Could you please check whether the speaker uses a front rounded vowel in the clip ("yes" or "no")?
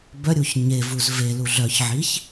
yes